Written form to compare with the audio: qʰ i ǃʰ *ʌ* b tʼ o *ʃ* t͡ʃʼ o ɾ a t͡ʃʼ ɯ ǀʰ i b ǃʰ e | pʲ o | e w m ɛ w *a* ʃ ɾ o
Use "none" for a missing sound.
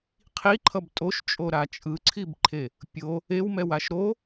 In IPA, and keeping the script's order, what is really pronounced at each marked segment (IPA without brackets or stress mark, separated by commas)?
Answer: ʌ, ʃ, a